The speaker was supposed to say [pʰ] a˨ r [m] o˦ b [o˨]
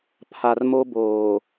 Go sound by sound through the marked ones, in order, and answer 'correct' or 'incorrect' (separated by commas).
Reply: correct, correct, incorrect